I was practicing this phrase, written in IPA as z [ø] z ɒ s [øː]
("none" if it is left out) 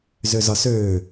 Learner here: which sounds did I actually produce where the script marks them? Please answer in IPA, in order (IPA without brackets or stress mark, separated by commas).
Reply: ø, øː